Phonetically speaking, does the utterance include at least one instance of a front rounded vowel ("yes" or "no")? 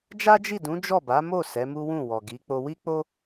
no